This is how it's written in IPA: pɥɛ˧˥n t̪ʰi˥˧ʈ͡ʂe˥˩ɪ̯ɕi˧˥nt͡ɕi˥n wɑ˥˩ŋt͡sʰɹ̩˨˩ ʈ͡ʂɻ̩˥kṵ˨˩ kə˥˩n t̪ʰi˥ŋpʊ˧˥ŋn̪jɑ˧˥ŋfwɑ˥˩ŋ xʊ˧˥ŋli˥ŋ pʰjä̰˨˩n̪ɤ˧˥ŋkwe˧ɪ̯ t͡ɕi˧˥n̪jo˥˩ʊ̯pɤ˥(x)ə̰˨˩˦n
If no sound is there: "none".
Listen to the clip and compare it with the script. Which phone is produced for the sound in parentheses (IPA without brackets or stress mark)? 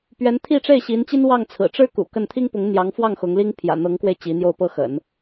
x